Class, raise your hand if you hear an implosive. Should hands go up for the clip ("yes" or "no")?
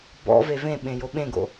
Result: yes